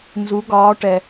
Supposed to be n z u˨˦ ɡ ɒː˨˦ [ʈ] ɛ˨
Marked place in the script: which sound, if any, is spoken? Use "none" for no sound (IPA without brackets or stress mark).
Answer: ʈ